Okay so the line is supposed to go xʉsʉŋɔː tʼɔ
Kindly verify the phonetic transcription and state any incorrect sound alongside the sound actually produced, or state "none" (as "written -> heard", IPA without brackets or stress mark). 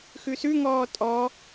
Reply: none